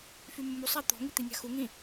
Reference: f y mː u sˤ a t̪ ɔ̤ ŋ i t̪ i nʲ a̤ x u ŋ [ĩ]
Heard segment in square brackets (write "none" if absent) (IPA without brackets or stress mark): ĩ